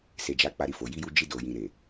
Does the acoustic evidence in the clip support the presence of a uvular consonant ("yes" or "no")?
no